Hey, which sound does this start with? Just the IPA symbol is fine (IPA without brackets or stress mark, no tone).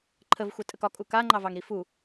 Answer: ǃʰ